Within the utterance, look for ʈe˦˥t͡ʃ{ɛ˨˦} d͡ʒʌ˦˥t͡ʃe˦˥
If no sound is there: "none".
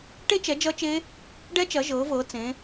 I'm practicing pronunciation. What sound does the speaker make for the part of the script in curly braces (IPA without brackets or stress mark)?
ɛ˨˦